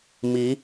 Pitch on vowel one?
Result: rising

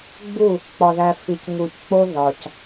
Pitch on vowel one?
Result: falling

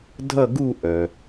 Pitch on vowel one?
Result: falling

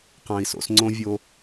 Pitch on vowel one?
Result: low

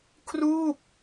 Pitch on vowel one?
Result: falling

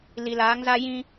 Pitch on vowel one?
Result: low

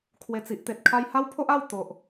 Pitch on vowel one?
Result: low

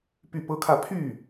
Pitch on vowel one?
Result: falling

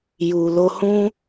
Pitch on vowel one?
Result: low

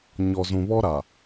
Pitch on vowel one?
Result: low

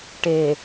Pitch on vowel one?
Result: low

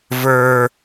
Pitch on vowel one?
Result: high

